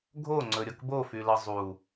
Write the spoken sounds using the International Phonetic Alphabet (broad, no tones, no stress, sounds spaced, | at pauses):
ɡʱ o ŋ͡ǀ ɵ ɾʲ ʌ k b o f y l ʌ zˤ u